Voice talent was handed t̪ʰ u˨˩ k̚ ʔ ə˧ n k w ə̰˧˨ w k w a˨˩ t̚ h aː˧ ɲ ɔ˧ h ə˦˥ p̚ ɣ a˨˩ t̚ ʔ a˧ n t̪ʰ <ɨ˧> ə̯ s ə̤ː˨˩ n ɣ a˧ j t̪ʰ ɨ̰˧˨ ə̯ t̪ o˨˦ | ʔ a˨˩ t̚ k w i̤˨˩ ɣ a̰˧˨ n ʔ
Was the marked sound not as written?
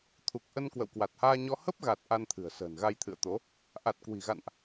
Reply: yes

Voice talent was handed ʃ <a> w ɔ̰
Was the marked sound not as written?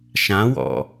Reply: yes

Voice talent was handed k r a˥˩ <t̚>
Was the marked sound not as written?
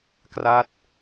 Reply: no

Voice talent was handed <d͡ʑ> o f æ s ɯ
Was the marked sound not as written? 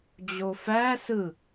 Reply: no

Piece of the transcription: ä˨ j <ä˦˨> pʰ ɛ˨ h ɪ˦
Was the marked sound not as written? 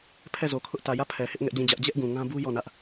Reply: no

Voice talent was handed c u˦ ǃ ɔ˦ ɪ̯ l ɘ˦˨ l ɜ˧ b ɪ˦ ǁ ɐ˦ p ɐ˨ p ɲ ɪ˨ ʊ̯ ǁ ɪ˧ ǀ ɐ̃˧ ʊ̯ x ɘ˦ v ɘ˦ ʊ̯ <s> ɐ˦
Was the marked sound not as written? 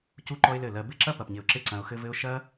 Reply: yes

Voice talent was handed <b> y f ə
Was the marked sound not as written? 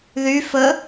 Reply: yes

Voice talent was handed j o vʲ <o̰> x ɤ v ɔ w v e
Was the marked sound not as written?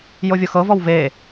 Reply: yes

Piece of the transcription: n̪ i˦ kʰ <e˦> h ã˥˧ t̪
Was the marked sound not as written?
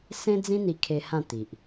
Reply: no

